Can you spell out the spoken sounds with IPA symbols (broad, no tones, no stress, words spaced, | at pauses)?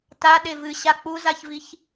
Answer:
ta ɗevɨ ɕak͡puzaçviç